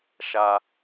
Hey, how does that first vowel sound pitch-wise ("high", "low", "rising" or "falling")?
high